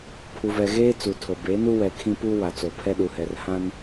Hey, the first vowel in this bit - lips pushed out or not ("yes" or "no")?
yes